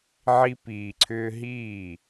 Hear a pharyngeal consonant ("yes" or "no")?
yes